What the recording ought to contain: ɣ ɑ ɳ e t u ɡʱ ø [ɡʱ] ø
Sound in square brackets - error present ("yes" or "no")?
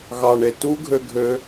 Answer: no